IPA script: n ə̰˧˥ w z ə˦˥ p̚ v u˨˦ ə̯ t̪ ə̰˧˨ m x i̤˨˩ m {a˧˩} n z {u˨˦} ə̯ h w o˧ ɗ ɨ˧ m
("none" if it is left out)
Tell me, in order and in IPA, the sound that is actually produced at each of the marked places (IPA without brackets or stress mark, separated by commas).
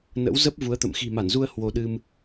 a˧˩, u˧